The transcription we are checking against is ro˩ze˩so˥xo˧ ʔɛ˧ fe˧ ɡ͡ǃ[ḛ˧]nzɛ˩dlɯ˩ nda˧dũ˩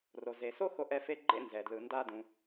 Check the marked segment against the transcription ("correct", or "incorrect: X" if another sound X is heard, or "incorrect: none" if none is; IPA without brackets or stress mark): correct